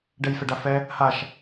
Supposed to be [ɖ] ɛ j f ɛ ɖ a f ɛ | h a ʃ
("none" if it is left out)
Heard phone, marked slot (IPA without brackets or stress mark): ɖ